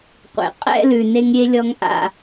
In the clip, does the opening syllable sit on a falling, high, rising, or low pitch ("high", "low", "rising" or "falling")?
low